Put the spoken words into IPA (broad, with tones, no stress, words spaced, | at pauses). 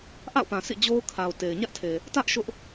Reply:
ʔa̰˦˨ʊ̯pã˨ sʰḭ˦˨d͡ʑo˦ʊ̯kʰa˨ʊ̯ te˨ɪ̯ ɲä˦ʔtʰe˨ | tä˦ʔ ʃʊ˦ʔ